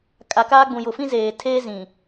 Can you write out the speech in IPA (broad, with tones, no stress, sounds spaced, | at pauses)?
kʼ a˨ k aː˦ ɡ͡b ũ˨ j ʊ˨ f ĩ˦ z eː˨ tʰ eː˦ z ĩ˨